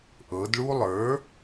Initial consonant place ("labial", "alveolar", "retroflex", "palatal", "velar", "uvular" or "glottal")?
glottal